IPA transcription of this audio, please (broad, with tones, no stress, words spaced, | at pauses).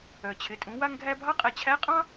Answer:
œ˩t͡ɕʰɪ˩˧tʼũ˩˧ wa˧ŋɡʱæ˧bʱɑ˧˥ qʼæ˧ t͡ɕʰæ˧˥qʼɑ̃˥